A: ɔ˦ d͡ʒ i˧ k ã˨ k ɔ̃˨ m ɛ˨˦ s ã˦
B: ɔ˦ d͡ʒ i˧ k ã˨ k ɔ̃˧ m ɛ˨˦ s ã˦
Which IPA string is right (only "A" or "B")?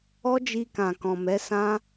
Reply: A